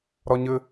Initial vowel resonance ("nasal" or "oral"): oral